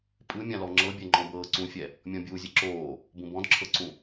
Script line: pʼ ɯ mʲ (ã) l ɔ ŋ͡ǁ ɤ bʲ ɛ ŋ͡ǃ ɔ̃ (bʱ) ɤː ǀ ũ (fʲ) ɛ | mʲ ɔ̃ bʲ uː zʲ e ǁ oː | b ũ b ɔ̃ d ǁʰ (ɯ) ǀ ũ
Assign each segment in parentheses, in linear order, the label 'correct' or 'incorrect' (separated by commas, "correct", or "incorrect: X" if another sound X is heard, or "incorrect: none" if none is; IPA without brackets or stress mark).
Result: correct, incorrect: b, correct, incorrect: ɤ